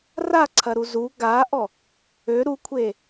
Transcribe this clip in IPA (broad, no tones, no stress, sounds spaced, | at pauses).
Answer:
r a ǀʰ ɐ ɾ u z u ɡ a ʔ ɔ | ø ɾ u kʷʰ e